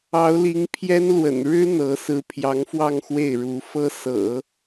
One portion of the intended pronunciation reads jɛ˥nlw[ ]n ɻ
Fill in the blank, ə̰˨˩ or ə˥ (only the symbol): ə̰˨˩